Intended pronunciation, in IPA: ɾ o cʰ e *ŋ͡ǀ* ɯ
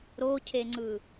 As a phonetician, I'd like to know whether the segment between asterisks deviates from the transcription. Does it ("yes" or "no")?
no